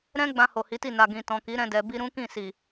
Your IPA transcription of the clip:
ɾ ɛ̃˦ ɡ͡b ã˧ h o˨ h i˨˦ t i˦˨ n a˨ ɡ ĩ˨ t ɔ̃˨ k i˨˦ ɾ ɛ̃˧ d ɛ˨ b i˧ ɾ ũ˦ k ĩ˦˨ s i˨

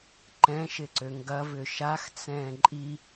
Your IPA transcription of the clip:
ǃ ɛ̃ ʃ ɪ ǀ ø ŋ ɡ ɐ v ʏ ʃ a x t͡s ɛ̃ː ǃʼ i

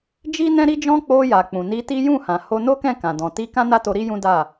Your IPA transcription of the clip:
d͡ʒ i˦ n ɛ̃˦ ɾ i˦ d͡ʒ ɔ̃˦ k͡p o˧ j a˨ k͡p ũ˨ n i˧ t i˦ j ũ˦˨ h ã˨ h o˧ n o˦ k ɛ̃˦˨ k ã˨ d ɔ̃˨ t i˧ k ã˦ n a˦ t o˧ ɾ i˦ j ũ˦ d a˦˨

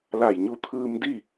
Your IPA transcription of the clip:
l a˧˩ j ɲ u˧ t̪ʰ ɯː˧ m d i˥˨

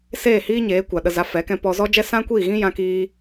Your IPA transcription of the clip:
s eː˦˨ h iː˦ ɲ eː˨˦ kʷ a˨ ɗ ə˧ z a˧ f ɛ˨˦ k ɛ̃˧ p ɔ˧ z ɔ˦ d͡ʒ ɛ˦ s ã˦ kʷ iː˦˨ ɣ ĩ˦ j ã˧ k iː˧

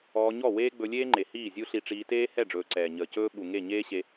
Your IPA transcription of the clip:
ɔː˧ ɲ ɔ˦˨ w eː˦ ɡ͡b ɵ˧ lʲ eː˦ ŋ͡ǃ e˨ h iː˦˨ zʲ u˦ ɬ i˧ ʈ͡ʂ iː˧ t eː˦ h ɛ˦˨ ɖ͡ʐ ɵː˨ ǀ ɛː˨ ɲ əː˨ c ɵː˦ ɓ u˨ ŋ e˦˨ ɲ eː˦ ɕ e˧

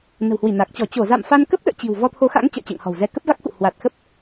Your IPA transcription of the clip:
n ə̤˨˩ w h w i˧˩ n a˨˩ k̚ t͡ɕ ɔ˧˩ t͡ɕ o˧˩ z a̰˧˨ m f a˧ n k ə˦˥ p̚ ɗ ə̰ː˧˨ t͡ɕ i̤˨˩ w v ɔ˧ t̪ʰ o˨˦ x a̰˧˥ ŋ t͡ɕ ə̰ː˧˨ t͡ɕ ɛ̰˧˨ ŋ h ɔ̤˨˩ w z ɛ˧ k ə˦˥ p̚ v a˦˥ k̚ x ṵ˧˨ h w a˨˩ t̚ x ə˦˥ p̚

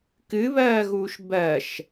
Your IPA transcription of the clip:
k ɨ β ɜː ɣ uː ʃ b ɜ ʃ

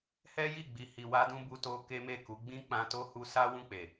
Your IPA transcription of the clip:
h ɛ˦ j i˦˨ ɡ͡b i˨ h i˨ w a˧ d ũ˧ b u˧ t o˧ k e˦ m e˦˨ k u˨˦ ɡ͡b ĩ˦ k͡p ã˧ t o˦ h u˧ s a˦ w ũ˦˨ k͡p e˨

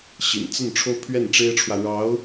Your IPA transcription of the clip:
ɕ ḭ˨˩ n t͡s ə˥˩ n ʈ͡ʂʰ o˥ ʊ̯ pʰ ɥ ɛ˥˩ n ʈ͡ʂ e˥ ɪ̯ ʈ͡ʂʰ w ä˨ ɻ ɑ˧˥ ʊ̯

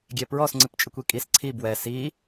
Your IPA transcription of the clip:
ɡʲ ɛ p ɹ ɔ s ŋ͡ǀ ɨ p t͡ʃʼ ɨ kʷ i kʼ i s ǀʰ i b w ɛ s i

